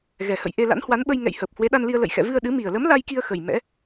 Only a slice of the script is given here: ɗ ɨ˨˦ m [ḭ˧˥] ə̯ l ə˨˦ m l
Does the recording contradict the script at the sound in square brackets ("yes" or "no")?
yes